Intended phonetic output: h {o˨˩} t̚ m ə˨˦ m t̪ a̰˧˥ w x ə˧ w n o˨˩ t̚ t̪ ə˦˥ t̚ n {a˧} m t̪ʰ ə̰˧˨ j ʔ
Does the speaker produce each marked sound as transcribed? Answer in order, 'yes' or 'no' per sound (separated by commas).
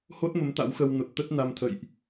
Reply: no, yes